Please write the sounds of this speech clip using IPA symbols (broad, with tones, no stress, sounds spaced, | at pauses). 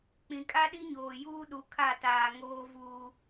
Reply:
k͡p ĩ˨ kʼ a˦ ɗ i˦ ɲ oː˨ j uː˦ ɗ u˨ kʰ a˦˨ t aː˨ ŋ oː˦ v uː˦